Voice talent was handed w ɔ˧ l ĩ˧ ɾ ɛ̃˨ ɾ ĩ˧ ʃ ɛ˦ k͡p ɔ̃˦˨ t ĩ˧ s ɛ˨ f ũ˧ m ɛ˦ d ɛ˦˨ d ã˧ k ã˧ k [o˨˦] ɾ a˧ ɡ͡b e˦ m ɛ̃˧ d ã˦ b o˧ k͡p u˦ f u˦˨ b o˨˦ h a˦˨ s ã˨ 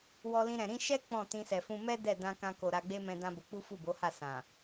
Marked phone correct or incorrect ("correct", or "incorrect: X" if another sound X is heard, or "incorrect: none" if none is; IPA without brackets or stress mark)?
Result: incorrect: o˨